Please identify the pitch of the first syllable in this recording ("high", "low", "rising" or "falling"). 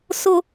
low